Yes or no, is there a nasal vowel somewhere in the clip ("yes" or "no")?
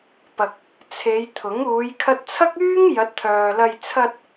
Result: no